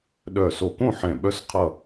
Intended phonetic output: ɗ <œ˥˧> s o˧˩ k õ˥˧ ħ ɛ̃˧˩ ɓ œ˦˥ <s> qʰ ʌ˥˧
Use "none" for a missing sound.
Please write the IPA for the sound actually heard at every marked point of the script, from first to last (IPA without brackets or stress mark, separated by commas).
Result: œ˧˩, s